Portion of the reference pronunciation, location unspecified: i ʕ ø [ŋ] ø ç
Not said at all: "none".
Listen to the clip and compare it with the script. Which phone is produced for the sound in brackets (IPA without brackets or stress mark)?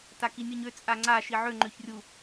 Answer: ŋ͡ǃ